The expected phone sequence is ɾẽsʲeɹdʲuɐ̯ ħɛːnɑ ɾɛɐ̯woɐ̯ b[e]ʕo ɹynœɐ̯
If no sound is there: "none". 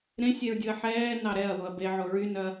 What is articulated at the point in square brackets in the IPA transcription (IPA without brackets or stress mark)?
e